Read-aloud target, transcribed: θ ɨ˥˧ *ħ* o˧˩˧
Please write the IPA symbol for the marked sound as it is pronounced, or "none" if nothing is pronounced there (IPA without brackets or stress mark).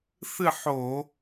ħ